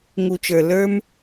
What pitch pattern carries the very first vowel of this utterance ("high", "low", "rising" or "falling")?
low